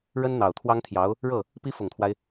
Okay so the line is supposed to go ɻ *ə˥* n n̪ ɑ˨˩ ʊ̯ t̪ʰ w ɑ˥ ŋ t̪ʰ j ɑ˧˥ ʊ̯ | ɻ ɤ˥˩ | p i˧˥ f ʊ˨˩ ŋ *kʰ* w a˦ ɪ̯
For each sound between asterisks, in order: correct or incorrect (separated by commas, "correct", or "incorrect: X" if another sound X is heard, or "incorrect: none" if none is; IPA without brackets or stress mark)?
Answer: correct, incorrect: t̪ʰ